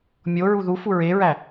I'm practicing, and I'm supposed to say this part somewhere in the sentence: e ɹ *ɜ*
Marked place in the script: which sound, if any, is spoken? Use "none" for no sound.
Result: æ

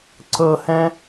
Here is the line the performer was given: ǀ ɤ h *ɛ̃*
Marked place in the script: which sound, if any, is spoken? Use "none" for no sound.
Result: ɛ̃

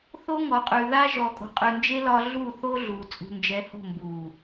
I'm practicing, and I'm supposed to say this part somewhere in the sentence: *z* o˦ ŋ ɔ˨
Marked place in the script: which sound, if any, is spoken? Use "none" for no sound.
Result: θ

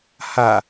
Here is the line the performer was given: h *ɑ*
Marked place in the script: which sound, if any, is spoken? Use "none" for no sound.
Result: a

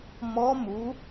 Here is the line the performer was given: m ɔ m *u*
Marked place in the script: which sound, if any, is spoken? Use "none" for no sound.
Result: u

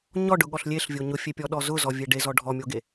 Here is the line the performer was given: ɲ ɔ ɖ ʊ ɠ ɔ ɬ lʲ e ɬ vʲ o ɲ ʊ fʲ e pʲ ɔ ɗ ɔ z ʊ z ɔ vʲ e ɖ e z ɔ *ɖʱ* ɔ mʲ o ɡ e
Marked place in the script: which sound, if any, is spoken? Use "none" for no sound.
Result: ɖʱ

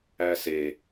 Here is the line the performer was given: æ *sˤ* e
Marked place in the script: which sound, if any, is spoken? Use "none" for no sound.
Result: s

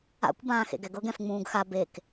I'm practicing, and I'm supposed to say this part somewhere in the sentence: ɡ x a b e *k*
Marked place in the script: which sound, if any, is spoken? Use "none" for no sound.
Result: k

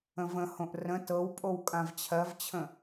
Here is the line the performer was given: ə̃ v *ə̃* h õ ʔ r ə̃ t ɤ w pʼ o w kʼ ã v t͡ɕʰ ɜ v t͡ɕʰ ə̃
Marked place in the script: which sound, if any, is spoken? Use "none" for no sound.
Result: ə̃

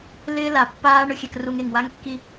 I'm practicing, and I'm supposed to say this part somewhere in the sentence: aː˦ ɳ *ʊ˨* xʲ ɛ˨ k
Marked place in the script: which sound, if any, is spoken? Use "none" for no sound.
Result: ʊ˨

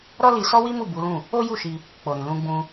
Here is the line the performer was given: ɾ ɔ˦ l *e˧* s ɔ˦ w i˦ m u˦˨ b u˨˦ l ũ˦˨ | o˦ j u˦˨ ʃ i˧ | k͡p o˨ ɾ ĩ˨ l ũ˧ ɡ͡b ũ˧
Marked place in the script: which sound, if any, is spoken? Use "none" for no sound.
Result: i˧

